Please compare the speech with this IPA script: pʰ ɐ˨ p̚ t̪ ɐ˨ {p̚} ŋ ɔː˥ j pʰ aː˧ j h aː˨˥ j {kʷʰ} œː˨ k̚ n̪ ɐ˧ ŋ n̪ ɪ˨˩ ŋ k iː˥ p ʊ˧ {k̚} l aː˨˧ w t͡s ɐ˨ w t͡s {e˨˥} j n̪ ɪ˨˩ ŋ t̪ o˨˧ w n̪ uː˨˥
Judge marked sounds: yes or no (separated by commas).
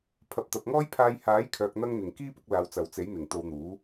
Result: yes, no, yes, yes